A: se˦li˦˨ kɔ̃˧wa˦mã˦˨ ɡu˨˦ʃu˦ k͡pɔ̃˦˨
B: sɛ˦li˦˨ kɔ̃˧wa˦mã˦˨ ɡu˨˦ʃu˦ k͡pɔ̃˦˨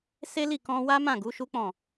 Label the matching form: A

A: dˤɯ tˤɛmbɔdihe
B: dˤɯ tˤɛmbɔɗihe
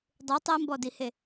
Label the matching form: A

